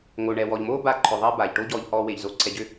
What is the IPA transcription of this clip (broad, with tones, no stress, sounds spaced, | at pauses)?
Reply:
ŋ o˧ ɳ ɛ˧ w ɔ˧ ʎ m oː˦ b a˧ ǃʰ ʏ˨ ðˤ i˧ b aː˨ ʎ ʈ o˦ ɟ ɔː˧ ʎ h ɔː˧ w e˨ ʎ z o˧ ǀʰ ɛ˧ ɟ ʏ˦